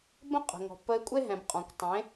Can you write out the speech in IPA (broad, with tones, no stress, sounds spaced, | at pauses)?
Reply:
b ə̃˦ qʼ ə̤˨ ŋ ɔ̤˨ pː ə˧ ɪ̯ kʷʼ e˦ ɦ ɛ̃˨ b qʼ ɔ̃˨ kʷ tˤ ẽ˨˦